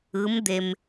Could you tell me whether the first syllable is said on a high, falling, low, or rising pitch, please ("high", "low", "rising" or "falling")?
rising